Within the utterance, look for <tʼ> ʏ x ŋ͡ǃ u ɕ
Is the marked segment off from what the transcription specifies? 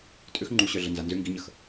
no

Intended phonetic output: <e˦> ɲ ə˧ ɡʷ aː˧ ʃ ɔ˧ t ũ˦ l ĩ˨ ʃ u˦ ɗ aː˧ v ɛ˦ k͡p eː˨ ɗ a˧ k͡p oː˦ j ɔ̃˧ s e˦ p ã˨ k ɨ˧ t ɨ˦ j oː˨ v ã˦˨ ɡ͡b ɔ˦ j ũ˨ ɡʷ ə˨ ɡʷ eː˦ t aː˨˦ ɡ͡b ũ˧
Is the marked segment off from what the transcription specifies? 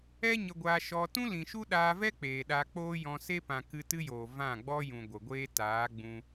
yes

